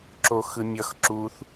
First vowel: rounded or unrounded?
rounded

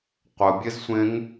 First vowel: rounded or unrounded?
unrounded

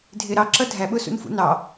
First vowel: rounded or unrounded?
unrounded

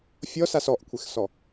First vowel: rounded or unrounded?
rounded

